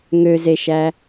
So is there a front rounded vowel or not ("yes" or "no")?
yes